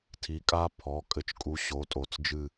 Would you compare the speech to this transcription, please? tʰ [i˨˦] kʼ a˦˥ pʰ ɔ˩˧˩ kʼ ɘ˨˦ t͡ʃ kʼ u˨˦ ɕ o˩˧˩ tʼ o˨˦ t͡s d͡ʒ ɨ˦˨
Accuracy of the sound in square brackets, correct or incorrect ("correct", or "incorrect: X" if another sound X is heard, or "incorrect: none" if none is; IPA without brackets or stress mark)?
correct